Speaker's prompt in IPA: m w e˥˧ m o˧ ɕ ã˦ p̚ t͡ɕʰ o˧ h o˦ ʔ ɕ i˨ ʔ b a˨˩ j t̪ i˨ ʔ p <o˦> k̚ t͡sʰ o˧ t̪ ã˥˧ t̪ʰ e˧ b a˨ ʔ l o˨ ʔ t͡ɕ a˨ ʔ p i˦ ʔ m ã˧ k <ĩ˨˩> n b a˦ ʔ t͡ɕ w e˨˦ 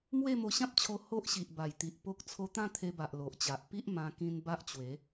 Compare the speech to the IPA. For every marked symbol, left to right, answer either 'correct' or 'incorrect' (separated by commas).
correct, incorrect